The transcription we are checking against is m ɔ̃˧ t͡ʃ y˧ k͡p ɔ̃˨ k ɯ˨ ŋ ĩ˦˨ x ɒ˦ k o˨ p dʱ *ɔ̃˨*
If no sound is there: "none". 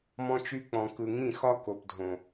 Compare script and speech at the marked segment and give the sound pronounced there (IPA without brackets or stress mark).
õ˨